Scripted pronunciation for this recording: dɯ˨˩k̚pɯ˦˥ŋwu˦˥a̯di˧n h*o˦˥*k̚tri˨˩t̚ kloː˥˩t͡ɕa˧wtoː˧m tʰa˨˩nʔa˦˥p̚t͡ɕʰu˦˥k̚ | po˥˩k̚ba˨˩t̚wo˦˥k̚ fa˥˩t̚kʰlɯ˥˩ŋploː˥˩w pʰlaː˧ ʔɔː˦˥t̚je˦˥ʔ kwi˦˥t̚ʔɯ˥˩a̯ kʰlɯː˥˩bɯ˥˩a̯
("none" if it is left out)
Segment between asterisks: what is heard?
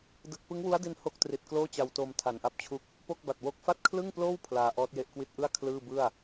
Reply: o˦˥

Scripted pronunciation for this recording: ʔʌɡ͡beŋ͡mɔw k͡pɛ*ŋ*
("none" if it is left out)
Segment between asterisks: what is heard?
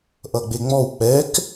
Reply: k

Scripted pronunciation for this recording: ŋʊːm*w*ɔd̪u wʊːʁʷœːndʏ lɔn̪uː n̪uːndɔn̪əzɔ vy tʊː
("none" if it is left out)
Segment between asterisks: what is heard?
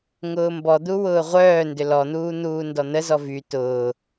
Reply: b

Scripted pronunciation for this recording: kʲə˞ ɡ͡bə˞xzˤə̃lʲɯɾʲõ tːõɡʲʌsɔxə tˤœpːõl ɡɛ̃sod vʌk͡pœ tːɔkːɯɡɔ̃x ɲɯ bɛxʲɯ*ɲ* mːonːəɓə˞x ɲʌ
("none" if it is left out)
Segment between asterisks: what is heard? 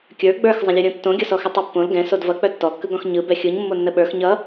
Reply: ɲ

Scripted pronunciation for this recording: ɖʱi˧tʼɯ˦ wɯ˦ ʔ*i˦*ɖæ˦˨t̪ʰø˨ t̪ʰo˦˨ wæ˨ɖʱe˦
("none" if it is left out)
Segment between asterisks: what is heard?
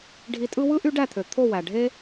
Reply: y˦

